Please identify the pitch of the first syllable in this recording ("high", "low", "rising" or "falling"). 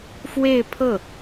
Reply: falling